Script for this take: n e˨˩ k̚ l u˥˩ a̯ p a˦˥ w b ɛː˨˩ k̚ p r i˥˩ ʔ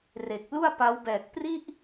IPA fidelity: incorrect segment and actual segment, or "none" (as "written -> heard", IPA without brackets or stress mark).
n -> r